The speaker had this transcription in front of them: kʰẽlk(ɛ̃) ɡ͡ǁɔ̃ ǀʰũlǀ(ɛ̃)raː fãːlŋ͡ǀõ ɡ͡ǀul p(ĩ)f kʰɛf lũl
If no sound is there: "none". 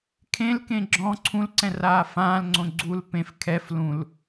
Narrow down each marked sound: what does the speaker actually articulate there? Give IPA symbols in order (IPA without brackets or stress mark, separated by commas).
ẽ, ɛ̃, ẽ